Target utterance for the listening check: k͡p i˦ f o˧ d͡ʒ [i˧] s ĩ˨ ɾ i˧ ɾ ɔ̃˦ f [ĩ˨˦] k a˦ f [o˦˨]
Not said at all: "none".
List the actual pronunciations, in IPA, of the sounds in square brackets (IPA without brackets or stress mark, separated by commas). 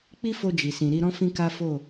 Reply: i˨, ĩ˦, o˦˨